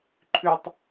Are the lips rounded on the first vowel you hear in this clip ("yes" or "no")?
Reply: yes